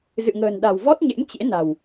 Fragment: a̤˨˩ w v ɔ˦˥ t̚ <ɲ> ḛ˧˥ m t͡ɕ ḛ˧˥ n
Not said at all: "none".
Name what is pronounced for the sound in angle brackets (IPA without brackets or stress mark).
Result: ɲ